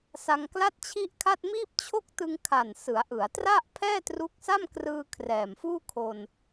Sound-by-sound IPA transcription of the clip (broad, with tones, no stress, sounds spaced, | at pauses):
s a˧ ŋ k l a˥˩ t̚ t͡ɕʰ i˥˩ ʔ kʰ a˥˩ t̚ m iː˥˩ p̚ t͡ɕʰ o˥˩ k̚ t ɯ˧ ŋ kʰ a˨˩ n s ɯ˩˦ a̯ ʔ ɯ˩˦ a̯ t r a˥˩ ʔ pʰ ɛː˥˩ t r u˦˥ k̚ s a˥˩ m k r ɯː˧ kʰ r ɛː˨˩ m f uː˥˩ kʰ o˧ n